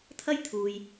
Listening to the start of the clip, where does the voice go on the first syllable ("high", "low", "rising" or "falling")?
high